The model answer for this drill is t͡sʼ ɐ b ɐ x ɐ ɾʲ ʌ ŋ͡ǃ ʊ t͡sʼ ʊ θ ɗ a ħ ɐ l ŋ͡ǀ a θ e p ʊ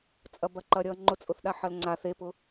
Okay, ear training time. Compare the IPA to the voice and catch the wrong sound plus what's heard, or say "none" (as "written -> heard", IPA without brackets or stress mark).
x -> ǃ